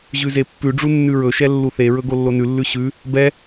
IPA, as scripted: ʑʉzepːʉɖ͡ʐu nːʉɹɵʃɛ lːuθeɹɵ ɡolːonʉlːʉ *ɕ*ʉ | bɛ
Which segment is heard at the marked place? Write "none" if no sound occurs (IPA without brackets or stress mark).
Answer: ɕ